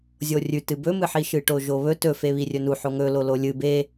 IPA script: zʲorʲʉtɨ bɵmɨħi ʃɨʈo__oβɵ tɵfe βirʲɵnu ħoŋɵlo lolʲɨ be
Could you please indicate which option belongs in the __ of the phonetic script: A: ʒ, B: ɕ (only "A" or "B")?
A